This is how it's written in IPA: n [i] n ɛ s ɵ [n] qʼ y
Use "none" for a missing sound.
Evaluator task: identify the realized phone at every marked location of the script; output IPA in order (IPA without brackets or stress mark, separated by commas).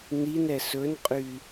i, n